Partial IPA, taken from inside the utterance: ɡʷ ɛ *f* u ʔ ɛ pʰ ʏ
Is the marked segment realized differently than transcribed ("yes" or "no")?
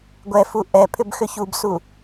no